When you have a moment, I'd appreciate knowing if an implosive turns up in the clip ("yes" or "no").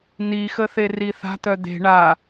no